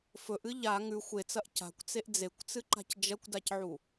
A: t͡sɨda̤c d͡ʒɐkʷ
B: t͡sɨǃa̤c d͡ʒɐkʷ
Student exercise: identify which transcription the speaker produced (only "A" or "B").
B